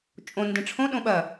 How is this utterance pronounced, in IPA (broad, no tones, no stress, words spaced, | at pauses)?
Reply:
t͡ʃʼõ ndẽʈ͡ʂʰõ ɗõɓɐ